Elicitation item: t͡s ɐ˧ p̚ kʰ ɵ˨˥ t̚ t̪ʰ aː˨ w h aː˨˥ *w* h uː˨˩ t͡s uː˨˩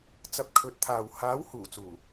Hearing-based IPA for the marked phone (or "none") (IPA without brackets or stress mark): w